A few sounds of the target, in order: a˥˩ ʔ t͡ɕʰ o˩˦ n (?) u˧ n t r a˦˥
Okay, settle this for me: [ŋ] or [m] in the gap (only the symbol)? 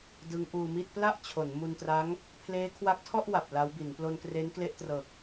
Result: m